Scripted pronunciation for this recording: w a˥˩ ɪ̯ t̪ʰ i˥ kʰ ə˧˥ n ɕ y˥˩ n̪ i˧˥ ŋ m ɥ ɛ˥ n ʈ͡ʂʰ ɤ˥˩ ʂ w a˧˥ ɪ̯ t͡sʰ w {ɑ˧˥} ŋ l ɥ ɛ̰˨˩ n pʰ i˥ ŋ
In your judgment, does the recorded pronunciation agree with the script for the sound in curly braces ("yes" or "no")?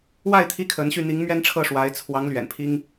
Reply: yes